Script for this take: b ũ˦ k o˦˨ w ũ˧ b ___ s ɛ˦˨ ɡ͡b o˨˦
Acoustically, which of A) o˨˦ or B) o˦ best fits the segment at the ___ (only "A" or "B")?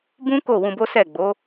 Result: B